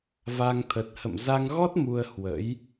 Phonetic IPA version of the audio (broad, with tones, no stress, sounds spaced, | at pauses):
v a˧ ŋ t̪ʰ ə˨˩ t̚ h ə̰˧˨ m z a˧ ŋ ɣ ɔ˦˥ t̚ m u˧ ə̯ h w ə̰˧˥ j